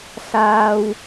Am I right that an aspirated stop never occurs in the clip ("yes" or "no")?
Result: yes